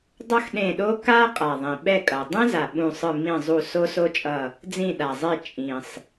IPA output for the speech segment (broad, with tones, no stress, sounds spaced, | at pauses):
dˤ ʌ˥ x ɗ ẽ˦˨ ɗ o˥ k a˥ qʼ a˨˩ ðˤ ĩ˨˩ ɓ ɛ˦˨ kʼ ʌ˨˩ dˤ ẽ˥ z a˨˩ ɓ ũ˦˨ sˤ ɯ˦˨ m ĩ˦˨ zˤ u˦˨ s o˥ s o˥ t͡ʃʼ ʌ˦˨ | d͡z ĩ˦˨ ɗ a˨˩ zˤ e˦˨ t͡ʃʼ ĩ˨˩ sˤ